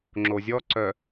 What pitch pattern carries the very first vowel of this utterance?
low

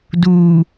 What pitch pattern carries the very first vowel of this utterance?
low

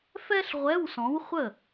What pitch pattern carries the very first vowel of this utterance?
high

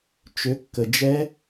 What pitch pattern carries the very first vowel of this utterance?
rising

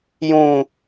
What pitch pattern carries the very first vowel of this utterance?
high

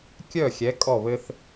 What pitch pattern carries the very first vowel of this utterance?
falling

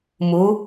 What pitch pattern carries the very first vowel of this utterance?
rising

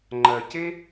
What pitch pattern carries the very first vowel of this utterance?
low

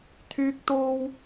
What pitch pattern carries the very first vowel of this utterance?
high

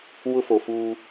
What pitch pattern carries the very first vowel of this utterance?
high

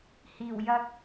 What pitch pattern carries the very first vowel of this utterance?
low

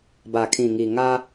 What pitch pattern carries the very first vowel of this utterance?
low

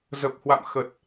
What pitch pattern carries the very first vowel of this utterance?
low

